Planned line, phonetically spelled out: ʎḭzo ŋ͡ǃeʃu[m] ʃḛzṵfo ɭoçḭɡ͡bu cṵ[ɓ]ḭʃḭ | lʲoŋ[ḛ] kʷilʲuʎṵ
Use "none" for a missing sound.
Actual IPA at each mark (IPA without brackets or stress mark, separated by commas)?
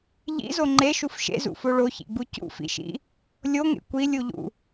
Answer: f, f, ḛ